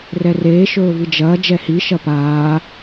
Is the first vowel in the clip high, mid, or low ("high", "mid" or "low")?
mid